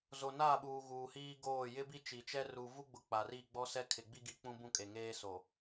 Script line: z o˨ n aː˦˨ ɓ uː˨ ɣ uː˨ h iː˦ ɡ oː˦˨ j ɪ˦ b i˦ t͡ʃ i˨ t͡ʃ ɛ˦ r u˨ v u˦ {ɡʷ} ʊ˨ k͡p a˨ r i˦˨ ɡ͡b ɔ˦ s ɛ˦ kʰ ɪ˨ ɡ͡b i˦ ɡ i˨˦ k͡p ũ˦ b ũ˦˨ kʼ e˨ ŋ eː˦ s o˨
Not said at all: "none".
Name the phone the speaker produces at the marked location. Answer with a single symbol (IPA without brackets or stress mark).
ɡ͡b